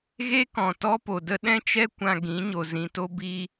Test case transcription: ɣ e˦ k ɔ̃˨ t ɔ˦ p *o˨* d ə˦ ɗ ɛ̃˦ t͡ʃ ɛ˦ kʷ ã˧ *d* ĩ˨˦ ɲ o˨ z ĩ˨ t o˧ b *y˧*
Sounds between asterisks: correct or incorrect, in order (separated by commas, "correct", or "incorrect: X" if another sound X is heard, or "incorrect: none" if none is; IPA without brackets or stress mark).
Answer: correct, incorrect: ɡ, incorrect: i˧